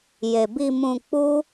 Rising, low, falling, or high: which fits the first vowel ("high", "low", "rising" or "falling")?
low